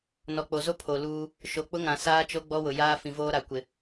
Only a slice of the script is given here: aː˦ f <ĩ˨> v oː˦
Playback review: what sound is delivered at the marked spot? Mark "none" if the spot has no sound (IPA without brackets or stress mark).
ĩ˨